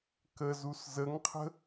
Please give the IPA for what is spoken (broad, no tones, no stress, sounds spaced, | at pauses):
k ə z u s z ə ŋ qʰ ə̤